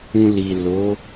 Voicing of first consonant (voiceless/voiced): voiced